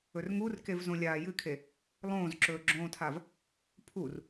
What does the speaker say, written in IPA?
ɵrŋurkev zõlʲaːjɨkʰe | lˠõːzǁɵːɡ͡ǁõːtʰav | pʰur

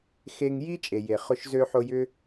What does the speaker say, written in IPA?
xe˧ŋ ji˥ t͡ʃʼe˩je˩χʊ˧ʃ zø˧ħʊ˧ jʏ˥

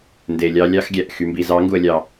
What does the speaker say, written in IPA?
nde˨lʲɑ˧ lʲɑ˦xɡʲæ˨ʔ xy˨mbi˨zɑ˨˦ ŋɡu˧ə̯lʲɑ˧

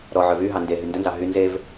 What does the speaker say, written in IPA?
ɾɔ ʕœvyɦɑ nde ɦyndɵnzɑ ɦy nzev

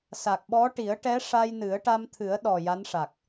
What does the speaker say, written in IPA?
sa˨˩k̚ɓɔ˧˥ ʈi˨˩˦ə̯ʈɛ˧˥ ʂa˧j nɨ˨˩˦ə̯ʈa˧m t̪ʰɨ˨˩˦ə̯ɗɔ˨˩ ja˧˥nʂa˨˩k̚

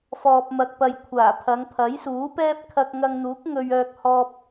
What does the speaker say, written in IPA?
fɔː˨p̚mɐ˨k̚ pɐ˨j kʷʰaː˨˩pʰɐ˨˧ŋ pʰɐ˨˥jsuː˨˥ pɛː˥p̚ kʰɐ˧k̚ŋɐ˧ŋn̪uː˨˥k̚ ŋɵ˧ɥœː˧k̚hɔː˧p̚

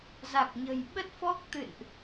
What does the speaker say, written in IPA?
za˨˩k̚ɲə̤˨˩j ɓə˦˥t̚fɔ˦˥k̚ t̪ɨ̰˧˨nʔ

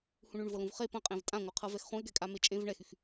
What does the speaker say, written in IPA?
hũɳyɳvɤlũv χe pɐ̃qʼẽv tʼãŋʷɯ qʰɤvɛxχũɪ̯ɡɛ kʼamet͡ʃʼẽv ɳɛxyx

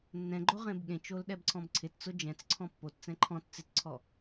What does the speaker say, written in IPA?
nːɛ̃ɡ͡ǃo ʁẽbɠẽt͡ʃol ɗɛbǀʰɔ̃bǀʰɪtt͡sʊ d͡ʒɛ̃t͡sǀʰɔ̃ pːott͡sɛ̃ ǃʰɔ̃t t͡sɪtǀʰɔ

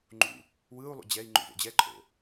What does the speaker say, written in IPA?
ŋ͡ǃṵ | wɯːu̯lˠṵ d͡ʑɛi̯ ŋ͡ǃṵvo̰d͡ʑɛǃʼo̰

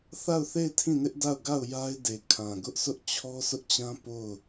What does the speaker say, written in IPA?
θa˦˨ʊ̯θe˦˨ɪ̯ tʰĩ˦˨nɪ˦ʔda˦˨ʊ̯ɡa˦˨ʊ̯ ja˦ɪ̯de˨ kʰã˨ɡʊ˦ʔsʰʊ˦ʔ t͡ɕʰɔ˦sʊ˦ʔt͡ɕã˦ po˦˨ʊ̯

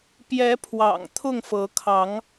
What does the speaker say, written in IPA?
pjɛ˨˦pʰwɑ̰˨˩ŋ t̪ʰʊ˥˨ŋfɤ˨˦kʰɑ˨˦ŋ

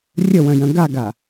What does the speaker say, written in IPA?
rʲəwœ̃jœ̃ ɡaɡa

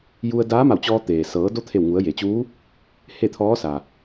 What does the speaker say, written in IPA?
ju˧ə̯daː˧˥ ma˧˩wt͡ɕɔː˧ t̪eː˩sɤː˩˧do˧˥ t̪ʰe˧˩wŋu˩˧ə̯je˩t͡ɕuː˧˥ | he˥˨t̪ʰɔː˧˥ sa˩

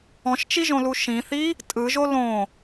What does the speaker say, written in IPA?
ɔ̃ʃt͡ʃiʒõlu ʃĩθi | tʼɯʒo lõ

